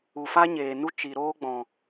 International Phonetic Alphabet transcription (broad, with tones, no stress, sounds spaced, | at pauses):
u˨ f a˦ ɲ eː˨ n u˦ t͡ʃ i˨ ɾ oː˦ ɡ͡b ɔ̃˨